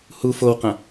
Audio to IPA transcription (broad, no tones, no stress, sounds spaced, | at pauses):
h u f o w q ɐ̃